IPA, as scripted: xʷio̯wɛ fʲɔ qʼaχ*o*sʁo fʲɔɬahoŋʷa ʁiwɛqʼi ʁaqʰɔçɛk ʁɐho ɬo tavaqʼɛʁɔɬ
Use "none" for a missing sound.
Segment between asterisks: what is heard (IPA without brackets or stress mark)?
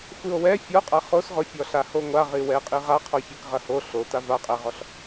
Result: o